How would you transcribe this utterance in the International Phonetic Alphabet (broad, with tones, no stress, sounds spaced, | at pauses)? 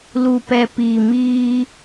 l u˨ p ɛ˨ p iː˨ m iː˧